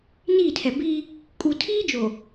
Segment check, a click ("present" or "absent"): absent